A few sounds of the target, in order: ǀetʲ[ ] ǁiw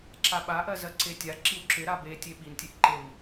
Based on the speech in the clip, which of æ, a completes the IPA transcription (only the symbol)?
a